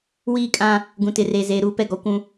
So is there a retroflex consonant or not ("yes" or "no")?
no